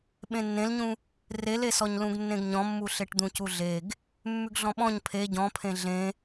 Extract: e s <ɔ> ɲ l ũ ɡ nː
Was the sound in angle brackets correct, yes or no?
yes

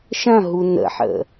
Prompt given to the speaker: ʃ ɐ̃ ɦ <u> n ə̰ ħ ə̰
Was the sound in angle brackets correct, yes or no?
yes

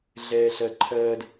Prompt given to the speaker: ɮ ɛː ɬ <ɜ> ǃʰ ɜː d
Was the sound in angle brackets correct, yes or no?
yes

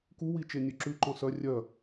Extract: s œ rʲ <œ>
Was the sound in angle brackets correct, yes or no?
yes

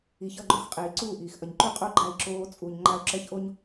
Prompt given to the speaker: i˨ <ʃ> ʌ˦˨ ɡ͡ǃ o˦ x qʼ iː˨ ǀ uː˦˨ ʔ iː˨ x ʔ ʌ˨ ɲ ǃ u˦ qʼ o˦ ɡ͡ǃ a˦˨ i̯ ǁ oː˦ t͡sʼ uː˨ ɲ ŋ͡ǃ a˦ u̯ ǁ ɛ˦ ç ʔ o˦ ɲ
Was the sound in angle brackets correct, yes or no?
no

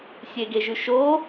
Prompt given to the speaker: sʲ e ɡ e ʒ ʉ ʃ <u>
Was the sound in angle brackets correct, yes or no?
no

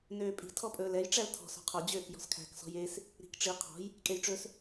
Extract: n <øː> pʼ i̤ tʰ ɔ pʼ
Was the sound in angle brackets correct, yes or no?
yes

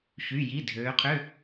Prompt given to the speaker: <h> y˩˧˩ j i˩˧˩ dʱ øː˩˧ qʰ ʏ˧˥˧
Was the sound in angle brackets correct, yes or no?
no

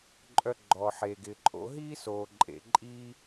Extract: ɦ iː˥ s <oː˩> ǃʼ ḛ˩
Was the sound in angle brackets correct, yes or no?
yes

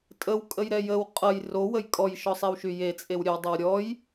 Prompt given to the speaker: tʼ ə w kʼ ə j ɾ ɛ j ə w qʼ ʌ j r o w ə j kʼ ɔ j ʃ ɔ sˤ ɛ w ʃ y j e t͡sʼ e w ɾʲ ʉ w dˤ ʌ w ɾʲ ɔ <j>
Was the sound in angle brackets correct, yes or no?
yes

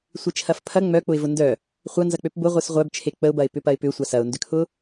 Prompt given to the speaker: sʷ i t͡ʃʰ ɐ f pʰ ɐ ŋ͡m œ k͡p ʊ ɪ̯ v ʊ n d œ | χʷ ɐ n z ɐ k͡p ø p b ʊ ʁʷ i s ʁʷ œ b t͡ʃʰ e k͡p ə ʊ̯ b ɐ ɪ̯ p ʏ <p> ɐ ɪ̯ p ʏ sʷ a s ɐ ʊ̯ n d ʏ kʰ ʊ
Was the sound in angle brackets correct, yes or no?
yes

